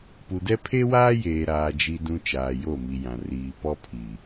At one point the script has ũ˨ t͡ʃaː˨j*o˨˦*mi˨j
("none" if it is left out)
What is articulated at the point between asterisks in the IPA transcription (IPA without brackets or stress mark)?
o˦˨